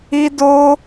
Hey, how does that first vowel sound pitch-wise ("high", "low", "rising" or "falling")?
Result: high